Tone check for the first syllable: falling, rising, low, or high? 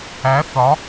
rising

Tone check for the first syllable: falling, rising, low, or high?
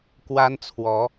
high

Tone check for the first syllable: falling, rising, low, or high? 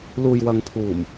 low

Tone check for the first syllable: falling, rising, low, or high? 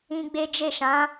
high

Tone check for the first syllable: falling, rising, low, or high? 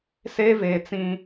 high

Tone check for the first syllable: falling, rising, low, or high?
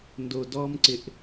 low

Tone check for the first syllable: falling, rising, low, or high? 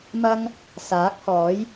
high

